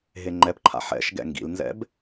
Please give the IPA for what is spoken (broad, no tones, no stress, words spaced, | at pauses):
ɦeŋ͡ǃɛpǃʰa̰ ħɛ̰ʃɡɛ̰ ŋɡḭlnzɛ̰b